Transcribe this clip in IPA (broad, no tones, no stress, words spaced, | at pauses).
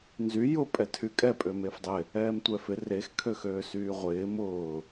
nzy jʊpʼɛ tʰykʼɛ pʼømefdˤɪ | ɛːmtʷɛfɪ rex kʰøxøːsyːʁʷɪː mʊː